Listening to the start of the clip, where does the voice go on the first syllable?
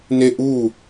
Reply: falling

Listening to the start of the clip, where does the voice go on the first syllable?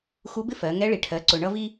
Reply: rising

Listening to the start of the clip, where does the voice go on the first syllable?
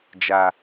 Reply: low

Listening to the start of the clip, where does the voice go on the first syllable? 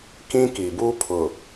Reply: high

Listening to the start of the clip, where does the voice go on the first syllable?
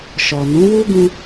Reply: low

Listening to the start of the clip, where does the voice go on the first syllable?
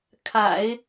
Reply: low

